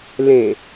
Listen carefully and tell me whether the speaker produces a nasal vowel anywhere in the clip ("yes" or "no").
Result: yes